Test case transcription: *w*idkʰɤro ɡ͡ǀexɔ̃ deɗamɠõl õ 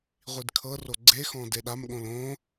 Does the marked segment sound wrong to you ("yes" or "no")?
yes